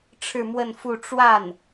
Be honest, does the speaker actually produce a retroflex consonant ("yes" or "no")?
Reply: yes